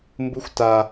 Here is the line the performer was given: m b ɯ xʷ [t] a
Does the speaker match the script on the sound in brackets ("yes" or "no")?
yes